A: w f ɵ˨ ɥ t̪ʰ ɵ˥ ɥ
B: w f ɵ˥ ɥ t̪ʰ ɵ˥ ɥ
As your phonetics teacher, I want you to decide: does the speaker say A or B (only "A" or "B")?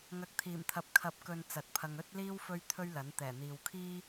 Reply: B